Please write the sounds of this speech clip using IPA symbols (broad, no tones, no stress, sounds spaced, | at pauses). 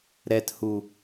ɾ ɛ t h u